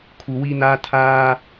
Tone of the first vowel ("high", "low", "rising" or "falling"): low